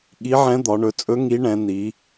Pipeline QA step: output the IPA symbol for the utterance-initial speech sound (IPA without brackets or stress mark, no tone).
ɠ